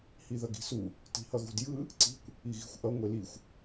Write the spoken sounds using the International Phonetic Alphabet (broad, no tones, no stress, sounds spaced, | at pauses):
h i ð ʌ ɡ i̤ s u | t i̤ h ʌ ɣ ṳ d j ɯ | ǀ i̤ kʷ | i ɣ i̤ xʷ ʔ ʌ ŋʷ e l i xʷ